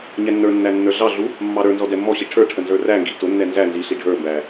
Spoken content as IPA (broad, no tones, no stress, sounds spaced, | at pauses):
ɲ ɛ nː ə˞ nː æ nː ə˞ ɮ ɑ ɮ u | mː ɑ ɾ ə˞ n z ɔ d ɛ mː ɔ ɕ i ʈʰ ə˞ ʈʰ ə n z ə˞ r æ ŋ ɡ i t ʊ nː ɛ n z æ n z i ɬ i ɖʱ ə˞ m b æ